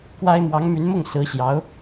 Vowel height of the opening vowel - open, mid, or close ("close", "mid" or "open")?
open